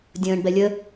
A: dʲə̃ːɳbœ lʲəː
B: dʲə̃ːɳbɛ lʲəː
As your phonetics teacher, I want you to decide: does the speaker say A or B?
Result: B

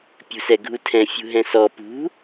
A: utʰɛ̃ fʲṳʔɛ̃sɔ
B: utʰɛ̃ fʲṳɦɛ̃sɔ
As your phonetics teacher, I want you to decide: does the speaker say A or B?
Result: B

